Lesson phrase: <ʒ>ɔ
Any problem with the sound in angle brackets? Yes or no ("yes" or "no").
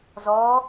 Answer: yes